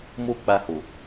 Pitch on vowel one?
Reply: high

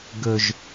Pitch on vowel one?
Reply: low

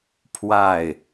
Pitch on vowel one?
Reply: falling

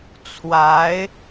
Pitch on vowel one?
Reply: rising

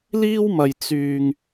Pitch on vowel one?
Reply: high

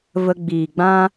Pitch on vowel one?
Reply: high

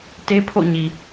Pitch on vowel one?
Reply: high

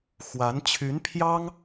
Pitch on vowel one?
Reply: rising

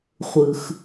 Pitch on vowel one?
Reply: low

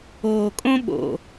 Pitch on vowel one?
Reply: low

